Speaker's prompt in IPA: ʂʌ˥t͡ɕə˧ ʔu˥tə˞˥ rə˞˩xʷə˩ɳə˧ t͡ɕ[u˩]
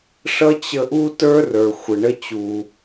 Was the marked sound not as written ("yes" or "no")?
no